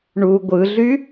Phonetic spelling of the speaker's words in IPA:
ɳ u ɡʷ ɯ ɮ y

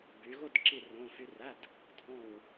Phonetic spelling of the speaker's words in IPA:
b y˨˦ ɣ ʊ˥˧ d ǁ i˥˧ r õ˧˥˧ f y˦˥ r æ˧˥˧ d | dʱ ɔ̃˥˧ w

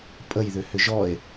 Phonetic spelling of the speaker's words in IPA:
pʼ ə j ð ʏ h ʏ ʒ ɔ e̯

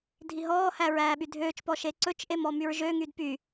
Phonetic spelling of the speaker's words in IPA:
dʱ i ɦ ɔː h æ ɹ æː ɓ y dʱ øː t͡ʃ p ɔ ʃ e ǀ ɵ t͡ʃ ʔ e m ɔ m y ɹ ʒ ø ŋ y d p y

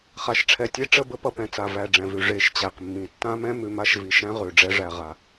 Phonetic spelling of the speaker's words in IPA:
χ a˨ ʃ ʈ͡ʂʰ ɛ˨ tʲ e˦ ʈ͡ʂ ə˦˨ b ə˦ p ʌ˨ p ɛ̃˨ t͡s a˨ v æ˨ ɖ͡ʐ ɛ̃˨ v ʉ˨ ʐ e˨ ʃ t͡ɕ æ˨ q mː ĩ˨ tː ã˦ m ɛ̃˦ m ʉ˨ m a˦ ʃ v i˨ ʃ æ̃˦ ʁ ʉ˨ ɖ͡ʐ ɛ˦ ʐ æ˨ ʁ a˦

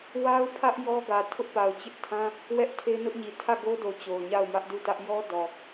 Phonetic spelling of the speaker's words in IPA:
w a˦ ʊ̯ pʰ ä˦ ʔ j ɔ˦ ɡ ä˨ tʰ ʊ˦ ʔ p a˨ ʊ̯ t͡ɕ ɪ˦ ʔ tʰ ã˦ | w ɛ˦ ʔ tʰ e˦ n ʊ˦ ʔ ɲ i˨ tʰ ä˦˨ ɡ o˦ d o˨ t͡ɕ o˨ ʊ̯ ɲ a˦˨ ʊ̯ m ä˦ ʔ d u˦˨ t ä˦ ʔ j ɔ˦ d ɔ˨

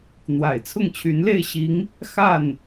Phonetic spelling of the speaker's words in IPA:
n̪ w a˨˩ ɪ̯ t͡sʰ ʊ˥˩ ŋ t͡ɕʰ y˧˥ n l e˥˩ ɪ̯ ɕ i˧˥ ŋ | x a˥˩ n

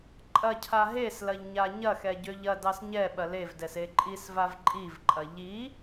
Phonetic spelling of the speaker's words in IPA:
ǃʼ ɐ cʰ a ɦ e s l ɐ ʎ ɲ a ɲ ɐ x ɛ ɟ ø ʎ ɐ d ɑ s ɲ ɛ ɓ ɐ l e v d ɛ s e ǃʼ i s v a v ǃʼ i v ǃʼ ɐ ʎ i

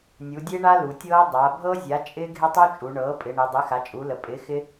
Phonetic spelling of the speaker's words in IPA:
nʲ u˩˧ dʲ e˦˥ ɳ a˦˥ l u˩˧ tʲ ɤː˦˥ dˤ a˩˧ bʱ ɤ˦˥ zʲ a˩˥ t͡ʃʼ ɪː˦˥ ɡʱ ɪ˦˥ tˤ u˦˥ t͡ʃʼ u˩˧ ɳ ɤː˩˥ pʼ ɪ˩˧ ɳ i˩˧ dˤ i˩˥ x a˩˥ t͡ʃʼ u˩˧ l ə˩˧ pʼ ɪː˩˥ x ɪ˦˥

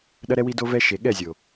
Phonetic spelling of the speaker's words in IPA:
ɗ ɐ˦ ɾ ɛ˦ w i˦ d o˦ v ɛ˦ ʃ e˨ ɠ ɛ˦˨ zʲ o˨

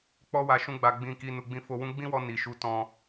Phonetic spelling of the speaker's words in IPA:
k͡p ɔ˧ w a˨ ʃ ũ˧ ɡ͡b a˨ ɡ͡b ĩ˨ k i˨ n u˨ ɡ͡b ĩ˨˦ f o˧ w ũ˦ ɡ͡b ĩ˦ w ɔ˧ n i˨ ʃ u˧ t ɔ̃˧

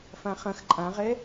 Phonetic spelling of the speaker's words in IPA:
f ã χ ɐ̃ x ǃʼ ã ʁ ɛ

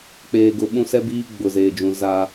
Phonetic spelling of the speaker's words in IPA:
k͡p eː˨ ɡ ʊ˨ ɓ ũ˦ s ɛ˦ b iː˦ ɡ͡b ʊ˨ z eː˨ d͡ʒ ũ˨ z a˦

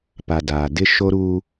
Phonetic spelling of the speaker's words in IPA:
p a˨ d aː˨ d ɪ˦ ʃ o˦ ɾ uː˦

